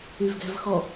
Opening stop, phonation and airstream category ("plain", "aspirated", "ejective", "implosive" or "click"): plain